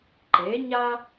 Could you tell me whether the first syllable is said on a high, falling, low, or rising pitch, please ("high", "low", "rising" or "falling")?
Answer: rising